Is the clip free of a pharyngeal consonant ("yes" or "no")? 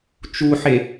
no